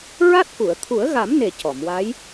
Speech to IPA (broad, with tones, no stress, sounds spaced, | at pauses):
ɹ a˦˥ t̚ k u˨˩˨ ə̯ t̪ʰ u˨˩˦ ə̯ ɣ a˨˩˦ m n e˨˩ c ɔ˨˩˨ m w a˧˥ j